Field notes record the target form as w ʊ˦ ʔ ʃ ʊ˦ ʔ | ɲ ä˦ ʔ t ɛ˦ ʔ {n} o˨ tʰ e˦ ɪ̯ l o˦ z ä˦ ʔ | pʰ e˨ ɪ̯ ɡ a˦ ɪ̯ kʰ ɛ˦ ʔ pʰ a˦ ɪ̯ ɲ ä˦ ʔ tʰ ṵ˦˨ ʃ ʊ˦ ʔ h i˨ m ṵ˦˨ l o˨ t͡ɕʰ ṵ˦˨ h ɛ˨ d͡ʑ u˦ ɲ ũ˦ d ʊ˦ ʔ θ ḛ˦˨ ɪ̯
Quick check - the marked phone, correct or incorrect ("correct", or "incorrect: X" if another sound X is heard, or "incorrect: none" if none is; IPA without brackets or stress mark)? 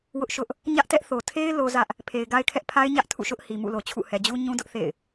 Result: incorrect: θ